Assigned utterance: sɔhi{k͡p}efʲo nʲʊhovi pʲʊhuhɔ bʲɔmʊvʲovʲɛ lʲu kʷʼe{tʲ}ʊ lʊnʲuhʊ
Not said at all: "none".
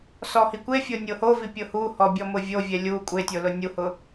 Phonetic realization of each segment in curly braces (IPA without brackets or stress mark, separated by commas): kʷ, tʲ